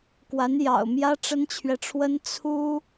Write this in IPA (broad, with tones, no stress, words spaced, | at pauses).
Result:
kwa˧˥njɑ̰˨˩ʊ̯mjä˥ ʈ͡ʂə˥nt͡ɕʰɥɛ˨ʈ͡ʂʰwə˥n t͡sʰu˥